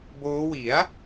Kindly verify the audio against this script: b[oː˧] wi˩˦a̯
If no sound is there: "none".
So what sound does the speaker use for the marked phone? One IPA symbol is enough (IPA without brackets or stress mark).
oː˦˥